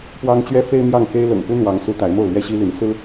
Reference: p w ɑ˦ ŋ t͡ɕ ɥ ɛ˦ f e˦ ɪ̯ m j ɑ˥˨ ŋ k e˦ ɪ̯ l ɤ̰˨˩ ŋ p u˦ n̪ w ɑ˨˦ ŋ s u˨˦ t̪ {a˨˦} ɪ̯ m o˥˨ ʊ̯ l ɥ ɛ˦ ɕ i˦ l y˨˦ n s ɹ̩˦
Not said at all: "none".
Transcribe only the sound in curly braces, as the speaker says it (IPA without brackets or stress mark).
a˨˦